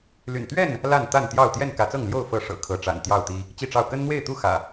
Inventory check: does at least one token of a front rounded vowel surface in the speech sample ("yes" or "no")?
yes